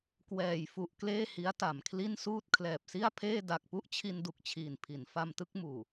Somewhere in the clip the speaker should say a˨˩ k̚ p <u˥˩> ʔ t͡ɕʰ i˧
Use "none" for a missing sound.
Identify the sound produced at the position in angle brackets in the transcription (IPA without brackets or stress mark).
u˥˩